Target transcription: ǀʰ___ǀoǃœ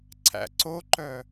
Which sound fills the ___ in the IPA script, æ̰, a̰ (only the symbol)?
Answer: æ̰